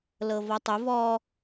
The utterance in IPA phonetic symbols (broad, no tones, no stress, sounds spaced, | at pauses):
l ɤ v ɔ tˤ o v ɔ